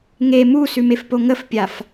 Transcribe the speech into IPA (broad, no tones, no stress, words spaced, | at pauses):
ŋe musʉmefpo ŋəfpʲaf